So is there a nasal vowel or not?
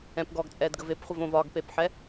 yes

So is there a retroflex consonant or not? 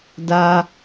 no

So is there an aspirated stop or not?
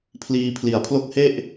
yes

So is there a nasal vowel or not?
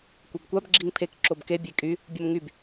no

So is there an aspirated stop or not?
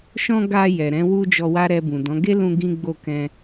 no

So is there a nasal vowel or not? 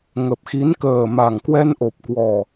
no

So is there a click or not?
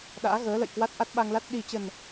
no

